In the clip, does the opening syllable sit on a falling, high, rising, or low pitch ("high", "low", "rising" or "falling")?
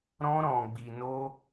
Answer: high